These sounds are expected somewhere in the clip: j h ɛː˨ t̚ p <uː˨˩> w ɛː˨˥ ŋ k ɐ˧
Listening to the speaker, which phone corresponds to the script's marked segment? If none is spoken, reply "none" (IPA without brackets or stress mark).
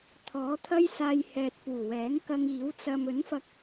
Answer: uː˨˩